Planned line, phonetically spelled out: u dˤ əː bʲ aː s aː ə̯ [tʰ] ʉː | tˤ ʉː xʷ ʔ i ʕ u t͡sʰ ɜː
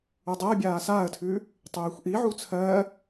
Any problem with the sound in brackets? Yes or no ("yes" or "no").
no